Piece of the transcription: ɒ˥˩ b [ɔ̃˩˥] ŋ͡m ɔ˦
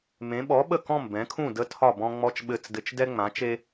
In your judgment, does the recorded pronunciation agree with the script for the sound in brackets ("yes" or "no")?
no